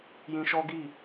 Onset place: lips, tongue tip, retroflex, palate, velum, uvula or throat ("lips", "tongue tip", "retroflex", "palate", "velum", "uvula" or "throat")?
palate